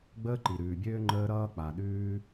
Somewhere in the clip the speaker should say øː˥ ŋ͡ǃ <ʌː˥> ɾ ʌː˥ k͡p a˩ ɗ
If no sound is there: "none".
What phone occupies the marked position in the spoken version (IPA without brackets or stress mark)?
əː˥